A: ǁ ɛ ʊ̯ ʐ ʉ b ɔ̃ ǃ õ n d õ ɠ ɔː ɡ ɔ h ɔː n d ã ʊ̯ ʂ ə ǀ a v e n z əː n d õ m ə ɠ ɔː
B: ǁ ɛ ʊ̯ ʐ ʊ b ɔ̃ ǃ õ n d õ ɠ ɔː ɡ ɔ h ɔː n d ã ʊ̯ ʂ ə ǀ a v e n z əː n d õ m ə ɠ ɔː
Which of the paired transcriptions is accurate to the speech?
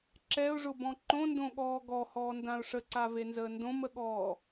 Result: B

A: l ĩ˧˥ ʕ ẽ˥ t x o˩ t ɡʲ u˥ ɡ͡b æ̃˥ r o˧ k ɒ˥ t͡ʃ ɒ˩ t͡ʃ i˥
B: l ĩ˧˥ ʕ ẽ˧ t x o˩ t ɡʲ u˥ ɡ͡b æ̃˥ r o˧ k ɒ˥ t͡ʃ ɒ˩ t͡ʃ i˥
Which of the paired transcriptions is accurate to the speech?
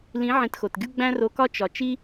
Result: B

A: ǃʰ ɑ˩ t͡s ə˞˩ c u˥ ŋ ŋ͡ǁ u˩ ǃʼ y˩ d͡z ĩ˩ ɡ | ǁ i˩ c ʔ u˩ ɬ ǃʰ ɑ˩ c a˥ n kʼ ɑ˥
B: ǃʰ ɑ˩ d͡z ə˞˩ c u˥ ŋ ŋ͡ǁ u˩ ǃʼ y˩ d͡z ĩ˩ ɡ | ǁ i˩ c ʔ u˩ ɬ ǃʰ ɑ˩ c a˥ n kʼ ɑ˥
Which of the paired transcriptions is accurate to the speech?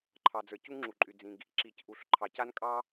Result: B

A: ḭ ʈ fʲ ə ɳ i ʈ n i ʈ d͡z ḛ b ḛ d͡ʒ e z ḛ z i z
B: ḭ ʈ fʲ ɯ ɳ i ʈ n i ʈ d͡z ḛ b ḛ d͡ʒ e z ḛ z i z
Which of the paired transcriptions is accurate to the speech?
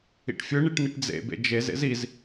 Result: B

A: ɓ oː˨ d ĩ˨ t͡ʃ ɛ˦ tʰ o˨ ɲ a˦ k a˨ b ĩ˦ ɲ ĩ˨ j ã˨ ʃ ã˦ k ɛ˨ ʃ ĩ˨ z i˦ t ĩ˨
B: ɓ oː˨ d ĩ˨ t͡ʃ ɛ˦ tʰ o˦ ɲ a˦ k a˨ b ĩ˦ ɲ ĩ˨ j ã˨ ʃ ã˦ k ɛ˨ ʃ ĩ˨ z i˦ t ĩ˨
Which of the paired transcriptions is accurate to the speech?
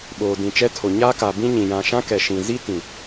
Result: A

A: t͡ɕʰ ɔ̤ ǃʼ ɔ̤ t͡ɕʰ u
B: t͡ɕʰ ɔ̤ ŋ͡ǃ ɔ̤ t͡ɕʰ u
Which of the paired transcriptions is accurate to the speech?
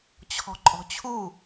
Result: A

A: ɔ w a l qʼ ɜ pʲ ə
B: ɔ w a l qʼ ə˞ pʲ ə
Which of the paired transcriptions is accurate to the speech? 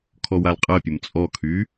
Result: A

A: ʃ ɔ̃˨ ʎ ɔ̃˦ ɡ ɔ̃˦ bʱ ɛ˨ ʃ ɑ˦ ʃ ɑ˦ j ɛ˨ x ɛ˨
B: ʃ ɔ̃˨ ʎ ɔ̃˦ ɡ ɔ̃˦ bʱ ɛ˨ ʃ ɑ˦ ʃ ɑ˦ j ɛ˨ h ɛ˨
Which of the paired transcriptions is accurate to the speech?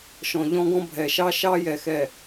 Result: A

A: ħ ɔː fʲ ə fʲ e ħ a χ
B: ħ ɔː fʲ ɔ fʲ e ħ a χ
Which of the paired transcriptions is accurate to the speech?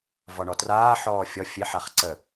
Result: B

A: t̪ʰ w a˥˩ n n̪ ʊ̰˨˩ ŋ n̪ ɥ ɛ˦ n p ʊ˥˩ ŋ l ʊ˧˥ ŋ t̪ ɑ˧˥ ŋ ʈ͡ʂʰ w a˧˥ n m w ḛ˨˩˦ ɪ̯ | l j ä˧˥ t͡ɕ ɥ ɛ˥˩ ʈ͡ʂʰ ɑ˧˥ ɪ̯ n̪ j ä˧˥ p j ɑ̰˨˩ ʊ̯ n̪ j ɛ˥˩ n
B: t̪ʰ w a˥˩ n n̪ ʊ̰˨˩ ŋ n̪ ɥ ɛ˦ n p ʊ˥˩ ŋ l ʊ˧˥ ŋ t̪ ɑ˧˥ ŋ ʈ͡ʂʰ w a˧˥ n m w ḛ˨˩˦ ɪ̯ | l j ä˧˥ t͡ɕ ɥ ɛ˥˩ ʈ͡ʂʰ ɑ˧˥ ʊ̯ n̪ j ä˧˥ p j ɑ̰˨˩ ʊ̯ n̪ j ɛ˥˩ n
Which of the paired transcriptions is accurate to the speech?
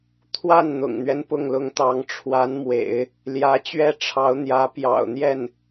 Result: B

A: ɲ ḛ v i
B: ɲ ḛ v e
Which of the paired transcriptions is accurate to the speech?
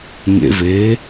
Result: B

